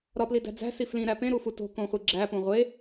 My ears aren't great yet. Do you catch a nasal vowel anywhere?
yes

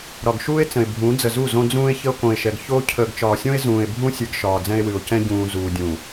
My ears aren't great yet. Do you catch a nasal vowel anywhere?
yes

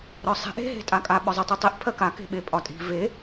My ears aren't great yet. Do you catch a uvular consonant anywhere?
no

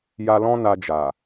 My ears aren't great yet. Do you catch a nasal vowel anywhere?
yes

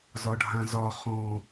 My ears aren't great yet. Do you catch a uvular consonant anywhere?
yes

